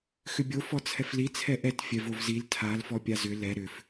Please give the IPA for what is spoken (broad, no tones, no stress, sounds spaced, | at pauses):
x ʏ bʲ o f ɔ t͡sʰ ɛ f l i t͡sʰ ɛ ʔ ɛ t fʲ ɛ v o v z i l tʰ a l f ɔ pʲ a z ʏ l ɛ ɾ ʏ f